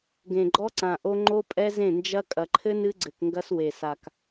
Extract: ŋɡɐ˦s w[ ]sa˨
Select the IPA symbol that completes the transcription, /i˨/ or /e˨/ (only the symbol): e˨